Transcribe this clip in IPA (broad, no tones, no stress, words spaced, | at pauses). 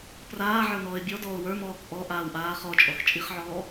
praː ʕə˞nɔːɪ̯bʲɔdɔːʊ̯ wə˞mɔːk ʔɔ ʔaːwʔaːχɔt͡ʃʼɔx t͡ʃʼiχʕɔː